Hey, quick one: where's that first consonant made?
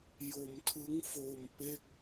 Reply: palate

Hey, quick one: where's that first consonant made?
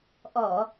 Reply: throat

